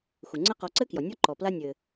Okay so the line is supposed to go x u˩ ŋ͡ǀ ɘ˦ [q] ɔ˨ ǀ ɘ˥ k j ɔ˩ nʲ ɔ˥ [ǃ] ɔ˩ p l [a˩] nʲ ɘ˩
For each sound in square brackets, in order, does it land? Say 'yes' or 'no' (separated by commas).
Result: yes, yes, no